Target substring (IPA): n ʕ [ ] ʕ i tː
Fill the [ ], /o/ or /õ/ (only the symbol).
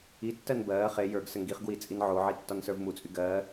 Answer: o